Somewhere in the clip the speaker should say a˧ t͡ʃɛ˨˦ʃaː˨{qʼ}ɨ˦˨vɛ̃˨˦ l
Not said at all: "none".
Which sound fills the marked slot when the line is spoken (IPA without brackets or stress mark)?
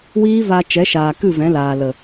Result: k